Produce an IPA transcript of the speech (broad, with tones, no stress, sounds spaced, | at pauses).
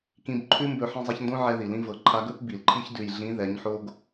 k ĩ˧ b ǃʰ ʉ˦ m b ɵ˧ ħ ĩ˧ zˤ a˧ ç n d õ˦ ʕ ɛ˧ ð i˨ l ĩ˧ v ɤ˨ ǃʰ a˧ ɡ ɵ˦ p b i˨ l ǃʰ i˦ ç d ʉ˨ j ɮ ĩ˨˦ ð ɛ˨˦ ɲ ħ o˦ ɡ